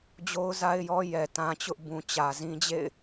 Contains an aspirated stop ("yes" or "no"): no